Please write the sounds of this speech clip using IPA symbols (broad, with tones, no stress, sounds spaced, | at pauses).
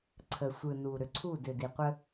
ǀʰ ə˨ sʷ ɯ˨ n u˨ ɾ ʏ˨ ǀʰ u˦˨ d ʏ˨ d i˨ qʷ ə˦